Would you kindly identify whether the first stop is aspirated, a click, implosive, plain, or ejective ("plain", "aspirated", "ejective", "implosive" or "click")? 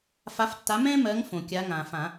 plain